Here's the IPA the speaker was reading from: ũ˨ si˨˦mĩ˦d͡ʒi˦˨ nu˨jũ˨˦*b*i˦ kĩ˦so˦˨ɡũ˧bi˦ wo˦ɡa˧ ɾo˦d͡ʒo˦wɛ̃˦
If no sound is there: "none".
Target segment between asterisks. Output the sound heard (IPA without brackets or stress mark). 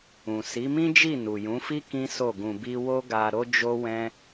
f